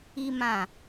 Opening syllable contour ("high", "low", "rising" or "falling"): high